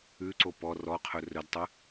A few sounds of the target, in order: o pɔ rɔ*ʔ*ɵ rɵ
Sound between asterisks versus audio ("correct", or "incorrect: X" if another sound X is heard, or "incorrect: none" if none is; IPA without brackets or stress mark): incorrect: qʰ